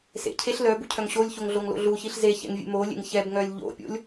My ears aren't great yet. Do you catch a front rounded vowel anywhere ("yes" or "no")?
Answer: yes